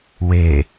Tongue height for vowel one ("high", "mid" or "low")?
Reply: mid